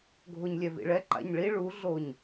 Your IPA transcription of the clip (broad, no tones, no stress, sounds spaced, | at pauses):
ɡʱ o ɲ lʲ ɛ v ḭ ɭ ɛ ǃ a̰ ɲ ɭ i ɭ u ɮ o ɲ